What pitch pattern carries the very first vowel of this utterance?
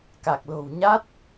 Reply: low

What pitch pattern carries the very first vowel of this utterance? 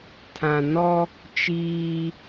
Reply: low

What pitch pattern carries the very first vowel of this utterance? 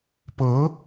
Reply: rising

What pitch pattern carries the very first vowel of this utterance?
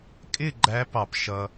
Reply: falling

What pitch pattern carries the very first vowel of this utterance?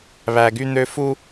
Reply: high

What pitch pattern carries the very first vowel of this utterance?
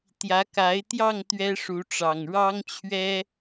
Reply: rising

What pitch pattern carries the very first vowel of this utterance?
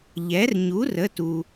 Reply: rising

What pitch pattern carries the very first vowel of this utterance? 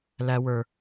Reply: high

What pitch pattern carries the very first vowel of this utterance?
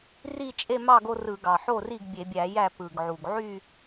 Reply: falling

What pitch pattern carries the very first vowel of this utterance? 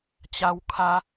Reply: high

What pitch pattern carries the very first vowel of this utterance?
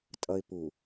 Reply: high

